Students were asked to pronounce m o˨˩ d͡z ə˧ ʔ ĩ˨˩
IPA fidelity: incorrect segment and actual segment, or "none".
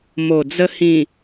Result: ʔ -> h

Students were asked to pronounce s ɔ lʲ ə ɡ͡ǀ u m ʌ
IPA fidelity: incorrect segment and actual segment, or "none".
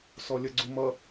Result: none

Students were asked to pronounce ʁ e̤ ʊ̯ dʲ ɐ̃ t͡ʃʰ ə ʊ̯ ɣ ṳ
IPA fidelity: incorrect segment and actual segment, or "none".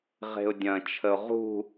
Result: ɣ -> ʁ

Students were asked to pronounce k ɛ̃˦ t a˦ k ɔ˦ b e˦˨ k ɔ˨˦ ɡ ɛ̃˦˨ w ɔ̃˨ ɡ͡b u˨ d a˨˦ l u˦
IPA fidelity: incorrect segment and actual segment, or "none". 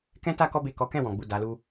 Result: ɡ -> k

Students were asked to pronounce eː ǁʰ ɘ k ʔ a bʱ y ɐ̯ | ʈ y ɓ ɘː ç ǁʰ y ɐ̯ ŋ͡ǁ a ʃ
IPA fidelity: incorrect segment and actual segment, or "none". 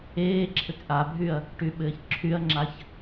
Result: ʃ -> ç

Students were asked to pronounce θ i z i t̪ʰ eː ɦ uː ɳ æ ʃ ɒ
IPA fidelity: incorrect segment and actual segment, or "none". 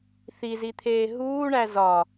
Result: ʃ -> z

